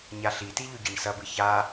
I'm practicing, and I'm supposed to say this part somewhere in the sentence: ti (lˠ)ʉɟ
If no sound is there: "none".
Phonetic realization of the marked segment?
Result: ʎ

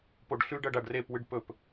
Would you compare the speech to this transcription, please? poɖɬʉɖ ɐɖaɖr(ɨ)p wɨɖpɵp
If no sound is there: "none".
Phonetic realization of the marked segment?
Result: e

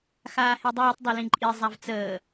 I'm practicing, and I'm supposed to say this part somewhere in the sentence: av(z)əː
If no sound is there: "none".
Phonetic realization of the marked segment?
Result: t͡s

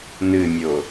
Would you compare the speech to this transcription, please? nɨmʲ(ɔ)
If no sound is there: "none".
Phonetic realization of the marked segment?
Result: o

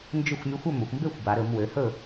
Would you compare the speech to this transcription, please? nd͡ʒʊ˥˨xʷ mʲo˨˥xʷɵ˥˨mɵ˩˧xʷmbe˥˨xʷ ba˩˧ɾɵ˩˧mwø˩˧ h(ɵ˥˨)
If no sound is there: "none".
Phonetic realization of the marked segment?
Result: ɵ˥˨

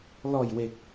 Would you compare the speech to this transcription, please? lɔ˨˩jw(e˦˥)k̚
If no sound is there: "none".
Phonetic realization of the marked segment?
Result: e˨˩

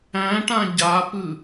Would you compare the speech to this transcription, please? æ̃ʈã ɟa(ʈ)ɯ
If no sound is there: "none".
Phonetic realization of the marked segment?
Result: p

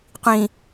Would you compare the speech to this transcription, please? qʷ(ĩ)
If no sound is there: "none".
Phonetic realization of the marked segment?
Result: ĩ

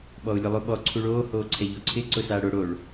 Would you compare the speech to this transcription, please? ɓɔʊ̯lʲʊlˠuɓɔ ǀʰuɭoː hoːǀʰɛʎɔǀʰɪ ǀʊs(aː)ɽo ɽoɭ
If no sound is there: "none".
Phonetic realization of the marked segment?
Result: aː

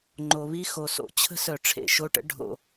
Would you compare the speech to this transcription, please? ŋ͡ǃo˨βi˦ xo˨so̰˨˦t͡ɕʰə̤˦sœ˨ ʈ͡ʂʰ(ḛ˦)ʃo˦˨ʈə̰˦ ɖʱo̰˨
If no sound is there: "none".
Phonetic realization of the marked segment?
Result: ḛ˨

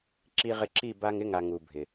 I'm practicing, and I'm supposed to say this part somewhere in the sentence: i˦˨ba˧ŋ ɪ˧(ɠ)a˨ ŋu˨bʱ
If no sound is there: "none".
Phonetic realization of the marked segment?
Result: ŋ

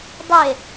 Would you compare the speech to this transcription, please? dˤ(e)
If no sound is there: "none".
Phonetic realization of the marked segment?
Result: e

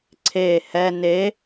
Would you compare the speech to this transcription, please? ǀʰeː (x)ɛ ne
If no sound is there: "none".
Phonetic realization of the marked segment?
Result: h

